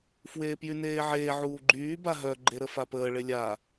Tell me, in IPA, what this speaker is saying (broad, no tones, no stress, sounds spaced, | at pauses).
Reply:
f w eː p j y n eː ʕ eː ʕ uː ɡ͡ǃ yː b a ɦ œ ɡ͡ǃ e ɾ ə f a p əː ɭ e lʲ a